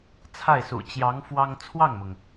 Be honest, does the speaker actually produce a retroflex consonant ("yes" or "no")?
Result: no